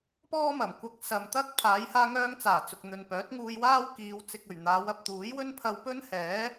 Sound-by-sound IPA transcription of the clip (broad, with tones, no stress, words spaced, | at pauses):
pɔː˥mɐ˨˩mkʷɐ˧k̚ sɐ˨mt̪ɐ˥k̚ pʰaː˨˧jhaː˧ŋœː˧ŋt͡saː˨˩ t͡sʊ˨k̚n̪ɵ˨n pœː˨˥t̚ŋuː˧jwaː˥wkiː˨˧w t͡sɪ˨k̚ɵ˨˩ɥ n̪aː˨˧wɐ˨p̚t̪uː˨˥jwɵ˥n pʰɐ˧wpɵ˥nhɛː˨˥